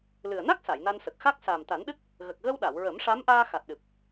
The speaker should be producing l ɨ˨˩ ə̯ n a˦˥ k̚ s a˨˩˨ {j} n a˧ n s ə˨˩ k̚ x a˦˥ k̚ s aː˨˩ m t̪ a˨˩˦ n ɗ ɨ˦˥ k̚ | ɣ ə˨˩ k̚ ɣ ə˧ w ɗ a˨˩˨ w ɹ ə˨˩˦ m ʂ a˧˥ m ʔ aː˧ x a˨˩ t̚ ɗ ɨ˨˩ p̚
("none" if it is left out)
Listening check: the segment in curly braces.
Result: j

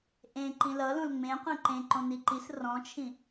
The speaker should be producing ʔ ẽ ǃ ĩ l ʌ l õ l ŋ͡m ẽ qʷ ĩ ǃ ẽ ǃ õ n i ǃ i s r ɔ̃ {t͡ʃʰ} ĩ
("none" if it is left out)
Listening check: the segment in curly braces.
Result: t͡ʃʰ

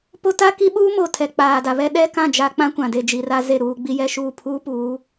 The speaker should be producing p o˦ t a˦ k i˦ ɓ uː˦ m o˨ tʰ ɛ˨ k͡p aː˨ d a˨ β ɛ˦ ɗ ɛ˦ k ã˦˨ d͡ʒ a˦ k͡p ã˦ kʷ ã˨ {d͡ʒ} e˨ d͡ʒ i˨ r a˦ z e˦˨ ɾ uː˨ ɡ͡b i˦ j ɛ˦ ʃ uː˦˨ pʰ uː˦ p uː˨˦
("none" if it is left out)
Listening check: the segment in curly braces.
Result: d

